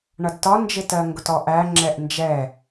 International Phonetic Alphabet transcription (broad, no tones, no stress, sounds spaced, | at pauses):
ɳ ʌ d t ɒ n d͡ʒ ɪ t ɜ ŋ ɡ ʊ t ɔ ʔ æ ŋ͡ǁ ɛ ʔ n d͡ʒ ɛ